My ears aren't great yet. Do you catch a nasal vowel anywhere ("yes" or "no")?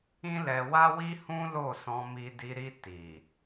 yes